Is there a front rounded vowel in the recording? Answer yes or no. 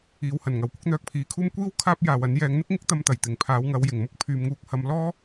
yes